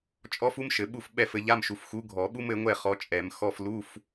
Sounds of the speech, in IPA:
t͡ʃʼ ɔ˥ f u˥ m ʃ ɘ˨˩˦ ɓ u˥˨ f ɓ ɛ˥˨ f ɘ˨˥ ʎ a˧˥˧ m ʃ u˨ f x u˨˥ ɡʱ ɔ˨˩˦ ɓ u˥ m ɘ˨˥ ŋʷ ɛ˥˨ χ ɔ˨˥ t͡ʃʼ ɛ˨˩˦ m x ɔ˧˥˧ f l u˧˥˧ f

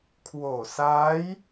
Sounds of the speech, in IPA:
kʰ w oː˨˩ s aː˦˥ j

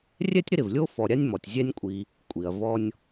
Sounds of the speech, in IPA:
rʲ ɛ˥ tʲ ɾ ɪ˦ ɾ ɪ˩ v lʲ o˥ f ɔ˨ ɾʲ a˥ nʲ m ɔ˩ tʲ zʲ ɛ˦ nʲ kʷʼ i˨ | kʷʼ i˩ ɐ̯ v ɔ˦ nʲ

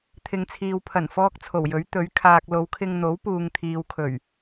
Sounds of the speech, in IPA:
t̪ʰ ɪ˨ ŋ t͡sʰ iː˨ w pʰ ɐ˨˩ n f ɔː˥ k̚ t͡sʰ o˨˩ w j ɵ˨˥ ɥ t̪ ɵ˨˥ ɥ kʰ aː˨ k̚ l o˨˧ w kʰ ɪ˧ ŋ n̪ o˨˥ w p uː˨ ŋ t̪ʰ iː˨ w kʰ ɵ˨˩ ɥ

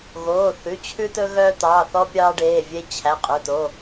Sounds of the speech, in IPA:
ɣ oː˩˧˩ θ ʉ˩˧˩ t͡ɕʰ ʉ˦ t ɵ˦ ɣ œː˦ t̪ ɑː˩˧˩ θ ɔ˦ pʲ ɑː˦ ɖ eː˩˧˩ vʲ e˦ t͡ɕʰ æ˩˧˩ qʼ ɵ˩˧˩ t o˩˧˩

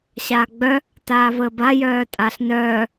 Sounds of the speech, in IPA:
ɕ aː ɡ͡b œ | t aː v əː b a j œː tʼ a ɬ n œː

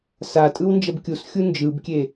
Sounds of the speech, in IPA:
s a tʼ ɯ w n d͡ʒ ʌ b kʲ u s xʲ u n d͡ʒ ɯ b kʲ e

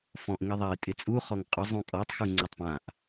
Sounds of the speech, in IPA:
f ɔ̃ ʔ ŋ i ðˤ a ɪ̯ tʼ ɪ t͡sʼ u χ ɔ ŋ qʼ ʊ zˤ ũ kʼ ɔ tˤ x u ŋ͡ǀ o tˤ p ã ʔ

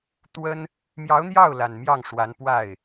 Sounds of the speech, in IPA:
t̪ w ə˥ n | m j ɑ˧˥ ʊ̯ n̪ j ɑ˥˩ ʊ̯ l a˨˩ n m j ɑ˥˩ ŋ ʂ w a˧˥ n p w a˥˩ ɪ̯

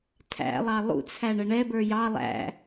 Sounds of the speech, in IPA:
tʰ æ̰ lˠ ɑ lˠ ṵ t͡sʰ æ ɳ ə ɳ ɛ b ə˞ j ɑ lˠ æ̰

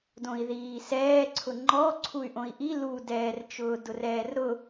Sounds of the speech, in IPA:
d õ i̯ ð iː s ɛː ǀʰ ʊ ŋ͡ǃ ɔ ǀʰ u y̯ ʔ õ i̯ ʔ i l u d ɛː r t͡ʃ ʊː d ʊ r ɛː r ɾ ʊ

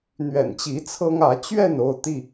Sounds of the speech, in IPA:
n̪ ɥ ɛ̰˨˩ n t͡ɕ i˨˦ t͡sʰ ɤ˦ ŋ ä˨˦ t͡ɕ ɥ ɛ˥˨ n o˥˨ ʊ̯ t̪ i˥˨

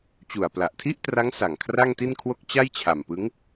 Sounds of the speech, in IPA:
t͡ɕ u˨˩ a̯ p l a˨˩ ʔ tʰ i˥˩ ʔ t r a˦˥ ŋ s a˨˩ ŋ kʰ r a˥˩ ŋ t i˥˩ n kʰ w o˥˩ k̚ t͡ɕ a˥˩ j t͡ɕʰ a˨˩ m p ɯ˦˥ ŋ

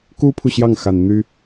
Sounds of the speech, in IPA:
k u˥ pʰ u˨ ɕ j ɑ˥˩ ŋ x a˨˩ n n̪ y˥

